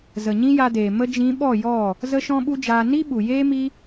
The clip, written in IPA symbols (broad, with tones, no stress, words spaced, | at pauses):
zə˨ɲĩ˦ja˧deː˨ mə˧d͡ʒĩ˨˦ ɓɔ˦˨jɔ˦˨ | zə˦ʃɔ̃˦ɓu˦d͡ʒaː˧ ni˦ɓu˨ jeː˦mi˦